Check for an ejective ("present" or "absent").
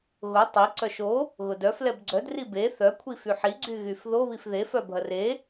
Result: absent